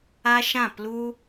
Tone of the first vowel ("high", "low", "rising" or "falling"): high